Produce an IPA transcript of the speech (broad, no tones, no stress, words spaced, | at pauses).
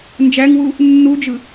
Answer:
nd͡ʒæŋwu | nːud͡ʒɯ